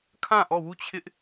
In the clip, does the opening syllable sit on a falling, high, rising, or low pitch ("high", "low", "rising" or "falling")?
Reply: falling